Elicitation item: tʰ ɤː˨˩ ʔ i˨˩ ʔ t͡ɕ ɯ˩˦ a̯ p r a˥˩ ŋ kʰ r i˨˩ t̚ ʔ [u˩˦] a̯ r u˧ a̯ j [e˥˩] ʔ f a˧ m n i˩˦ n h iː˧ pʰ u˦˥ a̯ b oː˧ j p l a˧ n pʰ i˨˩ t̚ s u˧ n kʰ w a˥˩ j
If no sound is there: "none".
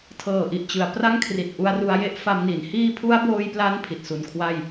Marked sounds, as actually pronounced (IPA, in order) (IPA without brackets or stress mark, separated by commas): u˧, e˥˩